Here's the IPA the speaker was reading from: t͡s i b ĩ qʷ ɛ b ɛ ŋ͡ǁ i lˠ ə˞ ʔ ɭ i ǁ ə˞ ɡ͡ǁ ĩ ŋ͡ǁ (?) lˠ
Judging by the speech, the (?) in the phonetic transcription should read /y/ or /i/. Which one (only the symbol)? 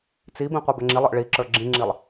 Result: i